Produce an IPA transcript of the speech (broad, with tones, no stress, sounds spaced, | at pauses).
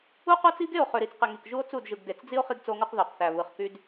u˦ q o˦ t͡s i˦ ɡ e˦˨ o̯ χ ø˨ ɾ i˨ t͡s q e˨ ŋ i˨ k ʒ u˦ o̯ t͡s u˦˨ d ʒ ɯ˨ ɡ d e˨ t͡s d͡z i˦ o̯ χ i˦ ɡ t͡s o˦ ŋ u˦ q ð o˨ q θ æ˨ β ɯ˨ χ k y˦ d